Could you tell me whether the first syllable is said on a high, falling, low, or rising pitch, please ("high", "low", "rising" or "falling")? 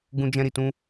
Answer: high